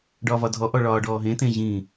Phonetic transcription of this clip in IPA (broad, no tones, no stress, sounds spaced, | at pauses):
ɖ ɒː v ɒ dʱ ɔ ʔ ɔ ɭ ɒː ɖ ɔː ɦ ẽ t ẽ ʑ ĩ